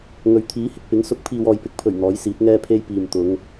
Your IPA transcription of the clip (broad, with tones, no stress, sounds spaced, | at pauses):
ŋ ɵ˨˥ ɥ t̪ʰ iː˨˥ h ɪ˧ k̚ p ɪ˨˥ ŋ s ʊ˨˥ k̚ pʰ iː˨ w ɔː˨ j p ɪ˧ k̚ pʰ ɵ˨˩ ɥ n̪ ɔː˨˥ j s iː˨˥ t̚ ŋ ɛː˥ pʰ e˥ j p iː˨ m t̪ ʊ˨˧ ŋ